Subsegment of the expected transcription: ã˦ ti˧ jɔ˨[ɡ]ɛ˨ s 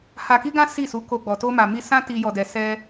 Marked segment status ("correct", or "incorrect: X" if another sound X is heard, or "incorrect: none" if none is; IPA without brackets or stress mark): incorrect: d